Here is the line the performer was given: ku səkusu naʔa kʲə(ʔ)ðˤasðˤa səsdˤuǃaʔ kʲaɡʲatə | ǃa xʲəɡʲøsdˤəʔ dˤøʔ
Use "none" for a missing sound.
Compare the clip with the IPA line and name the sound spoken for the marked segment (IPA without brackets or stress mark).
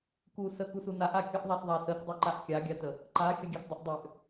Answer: ʔ